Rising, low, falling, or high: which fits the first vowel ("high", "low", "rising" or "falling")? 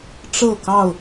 falling